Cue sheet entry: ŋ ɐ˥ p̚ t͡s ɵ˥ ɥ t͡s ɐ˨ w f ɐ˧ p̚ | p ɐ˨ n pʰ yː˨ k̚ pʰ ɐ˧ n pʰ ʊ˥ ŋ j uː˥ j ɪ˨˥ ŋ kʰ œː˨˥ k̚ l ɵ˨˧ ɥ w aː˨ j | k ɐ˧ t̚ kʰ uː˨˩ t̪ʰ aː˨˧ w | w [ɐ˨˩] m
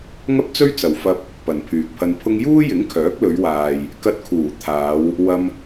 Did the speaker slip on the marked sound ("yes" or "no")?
yes